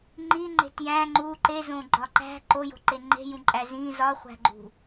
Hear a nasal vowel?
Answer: yes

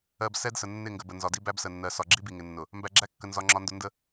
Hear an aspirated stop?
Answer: no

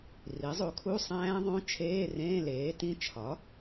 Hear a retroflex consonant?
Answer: no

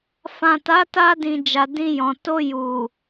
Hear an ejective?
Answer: no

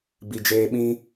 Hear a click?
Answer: no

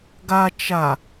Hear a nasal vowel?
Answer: no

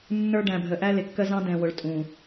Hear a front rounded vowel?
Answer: no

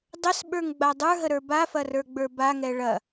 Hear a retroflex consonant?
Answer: yes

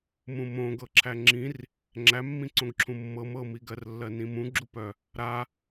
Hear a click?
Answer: yes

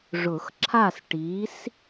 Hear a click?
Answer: yes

